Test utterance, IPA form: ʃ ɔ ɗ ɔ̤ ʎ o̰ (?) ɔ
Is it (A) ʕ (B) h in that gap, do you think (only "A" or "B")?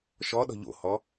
B